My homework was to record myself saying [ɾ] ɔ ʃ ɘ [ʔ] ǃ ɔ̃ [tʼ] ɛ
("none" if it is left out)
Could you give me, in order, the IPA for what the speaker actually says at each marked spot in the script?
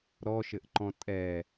ɾ, ʔ, tʼ

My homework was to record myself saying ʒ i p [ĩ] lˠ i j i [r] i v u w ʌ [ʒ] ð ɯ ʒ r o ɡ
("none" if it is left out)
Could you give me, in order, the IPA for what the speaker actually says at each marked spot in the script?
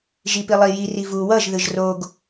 i, r, ʒ

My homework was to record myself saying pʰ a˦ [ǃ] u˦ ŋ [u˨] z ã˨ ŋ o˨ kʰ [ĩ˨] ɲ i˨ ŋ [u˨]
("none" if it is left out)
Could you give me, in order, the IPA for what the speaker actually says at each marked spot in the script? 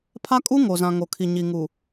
kʼ, o˨, i˨, u˨

